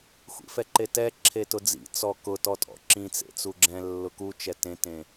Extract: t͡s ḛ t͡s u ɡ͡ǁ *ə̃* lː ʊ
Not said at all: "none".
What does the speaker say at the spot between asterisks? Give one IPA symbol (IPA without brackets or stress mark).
ɛ̃